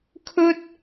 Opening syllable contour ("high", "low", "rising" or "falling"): high